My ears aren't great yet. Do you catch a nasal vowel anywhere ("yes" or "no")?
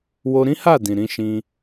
yes